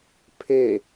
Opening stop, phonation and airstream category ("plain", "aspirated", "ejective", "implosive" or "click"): aspirated